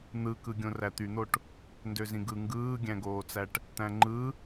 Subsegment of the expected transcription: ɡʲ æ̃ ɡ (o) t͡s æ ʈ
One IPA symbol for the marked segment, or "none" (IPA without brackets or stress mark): oː